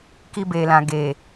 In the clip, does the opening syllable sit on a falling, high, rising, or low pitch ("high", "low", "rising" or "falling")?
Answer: high